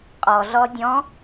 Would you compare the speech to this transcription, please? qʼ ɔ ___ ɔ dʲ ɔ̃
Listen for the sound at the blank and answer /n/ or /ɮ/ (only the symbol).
ɮ